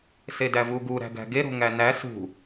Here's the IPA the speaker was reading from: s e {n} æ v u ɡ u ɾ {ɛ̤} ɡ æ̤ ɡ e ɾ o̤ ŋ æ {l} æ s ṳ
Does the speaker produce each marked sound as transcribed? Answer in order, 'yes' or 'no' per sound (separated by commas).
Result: no, no, no